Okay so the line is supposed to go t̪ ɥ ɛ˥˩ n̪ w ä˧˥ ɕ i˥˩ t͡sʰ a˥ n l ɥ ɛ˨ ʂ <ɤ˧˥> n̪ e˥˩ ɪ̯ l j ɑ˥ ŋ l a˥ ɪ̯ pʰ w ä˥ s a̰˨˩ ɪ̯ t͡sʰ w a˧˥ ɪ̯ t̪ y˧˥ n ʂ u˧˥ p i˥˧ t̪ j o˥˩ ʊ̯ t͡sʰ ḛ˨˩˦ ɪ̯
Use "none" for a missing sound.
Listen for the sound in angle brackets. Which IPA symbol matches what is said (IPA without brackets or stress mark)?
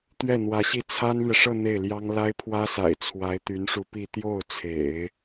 ɤ˥˧